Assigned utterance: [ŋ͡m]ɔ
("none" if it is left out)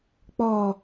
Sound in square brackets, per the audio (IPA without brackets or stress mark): k͡p